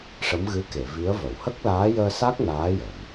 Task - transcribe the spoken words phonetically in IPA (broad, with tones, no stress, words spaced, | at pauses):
ʂə˧˥mɣɨ˧˥ke˨˩˨ vi˧˥ə̯və˨˩˨w hə˦˥k̚laː˧˥jəː˧sa˦˥k̚ naː˧˥jə˨˩˨m